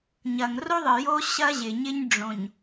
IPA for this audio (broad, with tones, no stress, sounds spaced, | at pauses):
ɲ ɐ˨ ŋ r o˦ ðˤ ɨ˨ j o˦ ɕ ɐ˦ ʑ ɪ˨ ɲ ɪ˦ ɲ ɖ͡ʐ õ˨ ɲ